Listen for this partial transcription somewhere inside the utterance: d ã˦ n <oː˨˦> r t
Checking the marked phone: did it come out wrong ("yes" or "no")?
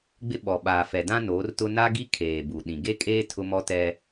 no